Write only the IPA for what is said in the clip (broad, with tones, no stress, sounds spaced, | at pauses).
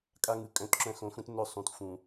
kʼ a˦ ŋ ɯ˨ kʼ œ̃˦˨ t ǁ œ̃˦ x õ˨˦ x ũ˦ t n œ˦˨ sˤ ũ˨ t f ũ˨